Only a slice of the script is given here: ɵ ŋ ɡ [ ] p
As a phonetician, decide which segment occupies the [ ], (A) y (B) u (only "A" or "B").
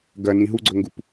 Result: B